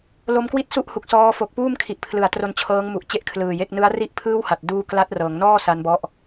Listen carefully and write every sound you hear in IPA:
l o˧ m k w i˥˩ t̚ s u˥˩ ʔ h u˨˩ k̚ s ɔː˧ f o˨˩ k̚ p uː˥˩ m kʰ i˨˩ ʔ pʰ l ɯ˩˦ a̯ t r o˧ n t͡ɕʰ ɤː˦˥ ŋ m u˨˩ ʔ t͡ɕ e˥˩ ʔ kʰ l ɯː˨˩ j e˥˩ k̚ n ɯ˦˥ a̯ r i˥˩ ʔ pʰ ɯː˥˩ w h a˨˩ t̚ d uː˦˥ k l a˦˥ t̚ r ɤː˩˦ ŋ n ɔː˥˩ s a˦˥ n b ɔ˦˥ ʔ

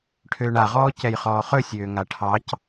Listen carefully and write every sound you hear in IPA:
ʈʰ øː ɳ a ʁ ɔː c ɛ j χ ɔː χ ɵ sʲ øː ŋ a ʈʰ ɑ c

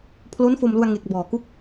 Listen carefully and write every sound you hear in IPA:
pʰ l o˦˥ n f o˧ m l u˧ a̯ ŋ e˨˩ k̚ b ɔː˨˩ k u˦˥ k̚

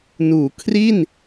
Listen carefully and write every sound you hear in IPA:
n uː˩˦ kʰ r i˥˩ n

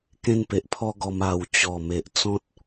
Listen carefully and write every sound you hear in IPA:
k ẽ˦ n p e˨ ʔ pʰ ɔ˦ ɡ ɔ˧ m a˧ w t͡ɕ ɔ˨˩ m e˨ ʔ t͡s ɔ̃˦ t̚

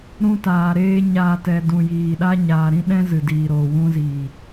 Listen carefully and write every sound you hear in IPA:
ɾ ũ˧ t aː˨ ɾ eː˧ ɲ aː˨ t ɛ˨ d ũ˨ j iː˨ ɗ a˦ ɲ aː˨ ɾ ĩ˦ ɗ ɛ̃˦ z ɨ˨ d iː˨ ɾ oː˨ w ũ˧ z iː˨

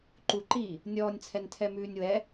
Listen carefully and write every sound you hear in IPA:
ǃ u ǃ iː | nʲ ɔː nʲ t͡sʰ ɛ n tʰ ɛ m ʉː nʲ w ɛ

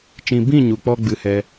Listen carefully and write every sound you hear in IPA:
t͡ʃ ĩ˨ b ĩ˦˨ ɲ u˨ k͡p ɔ˦ ɡ͡b ɨ˧ h ɛ˧

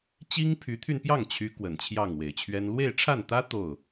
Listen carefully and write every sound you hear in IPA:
t͡ɕ i˥ ŋ pʰ y˧˥ t̪ʰ y˧ n p j ɑ˥˩ ŋ t͡ɕʰ y˧˥ k w ə˨˩ n t͡ɕʰ j ɑ˥˩ ŋ w e˨˩ ɪ̯ t͡ɕʰ ɥ ɛ˥ n l w e˥˧ ɪ̯ ʈ͡ʂʰ a˥˩ n t̪ ä˥ t̪ o˥˩ ʊ̯

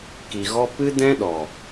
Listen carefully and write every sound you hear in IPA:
k i˨ ɣ ɔ˦ p ɨ˦ d ɛ̃˦ ɗ ɔ˨

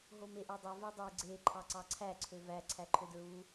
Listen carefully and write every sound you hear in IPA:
ɦ o m e ʔ o dˤ e v e dˤ e ɡ͡ǀ e ǃʰ ɑ ǀ ɑ ǀʰ æ ǀʰ ø v æ ǀʰ æ ǃʰ ø d ɹ u

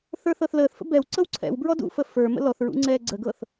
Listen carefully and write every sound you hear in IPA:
θ ə˞ θ ɤ θ l əː θ f ə̰ b ɛ w ǀ ɤ w ǀʰ ɛ̰ w b ɹ ɔ d ṵ f ə f ə˞ m ə̰ l ɔ θ ɹ ṵ ŋ͡ǀ ɛː ɡ͡ǀ ə ɡ ɤ θ

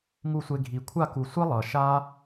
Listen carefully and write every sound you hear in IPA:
ŋ u˦˨ sʷ e˧ ɡʱ i˨ kʷʰ a˦˨ k u˨ sʷ e˦ lˠ ʌ˨ ʃ a˦

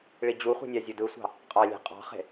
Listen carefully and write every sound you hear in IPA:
ɭ i d͡ʑ u χʷ i̤ nʲ ɑ zʲ u d ɯ sʷ ɑ̤ | qʼ ɑ lʲ e̤ qʼ ɑ̤ χ e̤

